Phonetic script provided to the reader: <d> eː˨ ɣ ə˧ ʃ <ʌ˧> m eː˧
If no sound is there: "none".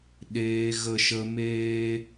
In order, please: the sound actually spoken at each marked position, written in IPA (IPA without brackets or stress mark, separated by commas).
ɗ, ə˧